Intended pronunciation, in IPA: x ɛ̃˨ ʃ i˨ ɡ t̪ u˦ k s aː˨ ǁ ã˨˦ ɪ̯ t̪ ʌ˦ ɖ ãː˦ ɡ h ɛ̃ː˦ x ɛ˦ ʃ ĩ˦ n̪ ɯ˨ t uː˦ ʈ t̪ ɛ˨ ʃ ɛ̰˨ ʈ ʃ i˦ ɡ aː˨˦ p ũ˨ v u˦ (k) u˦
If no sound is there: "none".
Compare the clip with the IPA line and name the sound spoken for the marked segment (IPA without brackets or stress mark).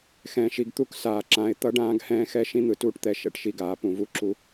ǁ